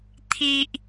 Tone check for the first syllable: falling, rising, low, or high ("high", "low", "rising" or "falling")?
low